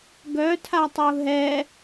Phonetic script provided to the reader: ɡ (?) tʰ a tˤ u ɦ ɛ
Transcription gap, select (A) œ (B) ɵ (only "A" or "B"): A